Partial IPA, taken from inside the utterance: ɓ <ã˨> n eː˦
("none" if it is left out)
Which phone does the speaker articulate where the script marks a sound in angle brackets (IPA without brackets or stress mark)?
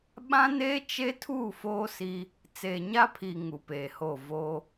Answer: ã˦